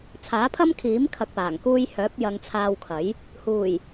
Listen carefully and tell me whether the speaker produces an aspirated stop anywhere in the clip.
yes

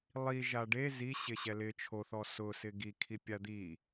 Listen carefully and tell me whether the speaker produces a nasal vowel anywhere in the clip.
no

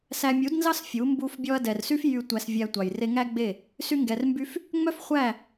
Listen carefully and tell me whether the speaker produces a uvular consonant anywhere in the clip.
yes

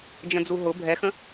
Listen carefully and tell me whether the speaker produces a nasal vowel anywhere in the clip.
yes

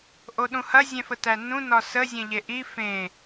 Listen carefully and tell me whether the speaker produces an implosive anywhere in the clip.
yes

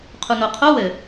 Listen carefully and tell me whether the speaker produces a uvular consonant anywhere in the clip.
yes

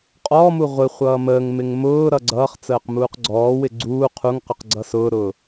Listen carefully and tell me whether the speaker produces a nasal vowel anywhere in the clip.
no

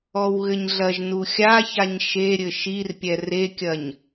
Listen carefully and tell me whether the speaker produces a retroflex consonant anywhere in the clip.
no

